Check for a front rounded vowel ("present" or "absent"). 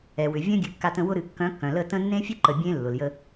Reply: present